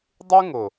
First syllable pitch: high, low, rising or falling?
high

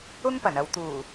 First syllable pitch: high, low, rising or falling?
high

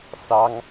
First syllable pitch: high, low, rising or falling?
high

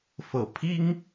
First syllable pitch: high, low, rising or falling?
low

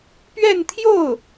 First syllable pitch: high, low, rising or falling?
falling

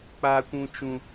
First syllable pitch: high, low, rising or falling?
low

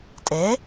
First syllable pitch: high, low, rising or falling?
rising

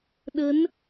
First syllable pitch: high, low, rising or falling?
rising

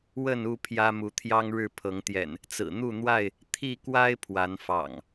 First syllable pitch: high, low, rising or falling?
falling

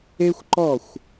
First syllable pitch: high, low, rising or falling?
high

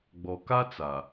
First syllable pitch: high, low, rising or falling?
low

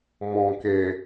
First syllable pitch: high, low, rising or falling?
low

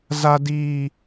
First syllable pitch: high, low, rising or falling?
high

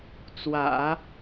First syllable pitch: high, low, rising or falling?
low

